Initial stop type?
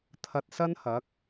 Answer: aspirated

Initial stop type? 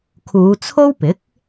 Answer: aspirated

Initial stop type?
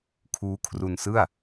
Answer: aspirated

